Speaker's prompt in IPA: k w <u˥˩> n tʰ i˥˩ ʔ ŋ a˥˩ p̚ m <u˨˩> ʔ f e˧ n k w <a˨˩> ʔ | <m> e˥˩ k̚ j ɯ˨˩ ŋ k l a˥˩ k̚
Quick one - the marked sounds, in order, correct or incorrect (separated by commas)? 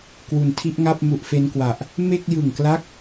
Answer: incorrect, correct, correct, correct